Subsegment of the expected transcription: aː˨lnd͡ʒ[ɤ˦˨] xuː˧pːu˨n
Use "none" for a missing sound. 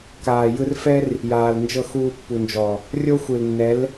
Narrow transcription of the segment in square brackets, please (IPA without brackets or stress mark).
ɤ˦˨